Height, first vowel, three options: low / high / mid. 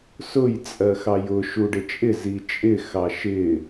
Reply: high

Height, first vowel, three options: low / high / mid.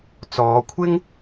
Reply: mid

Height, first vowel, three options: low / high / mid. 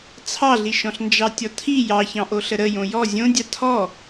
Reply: low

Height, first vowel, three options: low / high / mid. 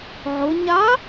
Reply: high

